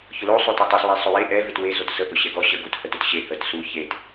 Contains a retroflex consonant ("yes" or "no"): no